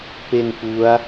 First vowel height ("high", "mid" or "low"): mid